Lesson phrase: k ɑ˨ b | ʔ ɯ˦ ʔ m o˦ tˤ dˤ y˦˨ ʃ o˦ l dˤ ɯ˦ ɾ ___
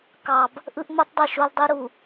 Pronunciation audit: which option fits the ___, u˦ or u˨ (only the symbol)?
u˨